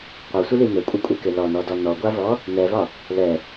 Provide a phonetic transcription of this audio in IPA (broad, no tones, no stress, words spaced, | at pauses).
qʷasʷɪli nɘkʷʼɘkʷʼɛkɪ lɔnɔdɔ nɔɡʷavɔ | nɛvɒ | lɛ